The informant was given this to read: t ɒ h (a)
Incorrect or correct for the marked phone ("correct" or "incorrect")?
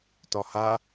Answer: correct